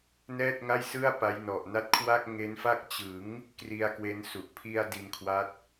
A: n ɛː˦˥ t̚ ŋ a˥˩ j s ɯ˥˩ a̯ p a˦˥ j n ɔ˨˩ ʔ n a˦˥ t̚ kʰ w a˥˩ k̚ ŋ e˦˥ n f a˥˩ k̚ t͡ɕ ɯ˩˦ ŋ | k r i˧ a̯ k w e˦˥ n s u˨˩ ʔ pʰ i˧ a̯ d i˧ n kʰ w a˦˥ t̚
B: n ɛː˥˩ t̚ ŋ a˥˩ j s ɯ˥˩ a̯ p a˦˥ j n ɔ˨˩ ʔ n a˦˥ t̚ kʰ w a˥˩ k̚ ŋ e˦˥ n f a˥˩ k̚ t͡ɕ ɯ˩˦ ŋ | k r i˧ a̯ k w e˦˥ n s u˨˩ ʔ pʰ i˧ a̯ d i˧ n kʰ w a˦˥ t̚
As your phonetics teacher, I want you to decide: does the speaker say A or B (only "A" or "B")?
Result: B